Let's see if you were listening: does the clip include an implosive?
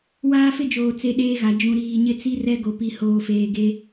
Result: yes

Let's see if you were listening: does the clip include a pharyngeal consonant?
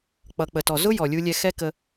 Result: no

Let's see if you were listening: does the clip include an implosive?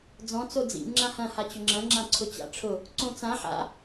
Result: no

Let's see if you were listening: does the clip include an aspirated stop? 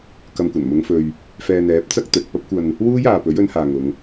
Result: no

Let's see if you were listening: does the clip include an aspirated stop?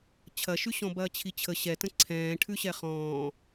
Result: yes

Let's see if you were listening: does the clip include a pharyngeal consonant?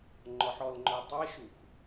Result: yes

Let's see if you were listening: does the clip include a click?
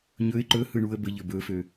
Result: yes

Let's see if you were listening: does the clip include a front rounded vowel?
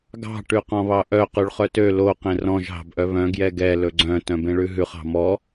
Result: yes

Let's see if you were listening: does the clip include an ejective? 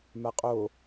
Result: yes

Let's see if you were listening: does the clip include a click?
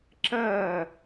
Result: yes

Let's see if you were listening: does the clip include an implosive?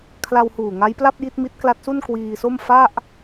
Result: no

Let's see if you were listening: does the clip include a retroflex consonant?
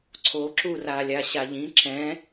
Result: no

